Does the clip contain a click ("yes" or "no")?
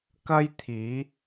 no